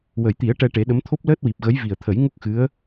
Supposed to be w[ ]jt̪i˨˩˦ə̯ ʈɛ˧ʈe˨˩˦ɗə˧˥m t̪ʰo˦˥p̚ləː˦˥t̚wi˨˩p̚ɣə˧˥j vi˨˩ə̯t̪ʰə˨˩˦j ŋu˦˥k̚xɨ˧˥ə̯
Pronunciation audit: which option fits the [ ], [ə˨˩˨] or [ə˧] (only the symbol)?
ə˨˩˨